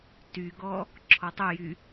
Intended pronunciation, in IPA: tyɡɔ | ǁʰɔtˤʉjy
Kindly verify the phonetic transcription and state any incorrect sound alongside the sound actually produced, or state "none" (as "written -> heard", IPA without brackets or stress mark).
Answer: none